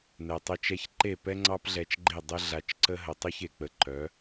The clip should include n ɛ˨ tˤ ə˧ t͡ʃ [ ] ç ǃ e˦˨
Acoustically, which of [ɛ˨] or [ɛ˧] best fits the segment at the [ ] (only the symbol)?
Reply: ɛ˧